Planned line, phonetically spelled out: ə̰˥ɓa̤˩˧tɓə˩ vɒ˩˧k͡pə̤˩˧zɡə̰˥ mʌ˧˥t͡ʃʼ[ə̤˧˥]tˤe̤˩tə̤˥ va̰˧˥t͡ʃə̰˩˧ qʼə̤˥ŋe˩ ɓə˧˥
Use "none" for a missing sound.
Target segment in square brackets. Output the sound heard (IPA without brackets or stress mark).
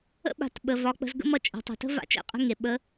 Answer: ə̤˩˧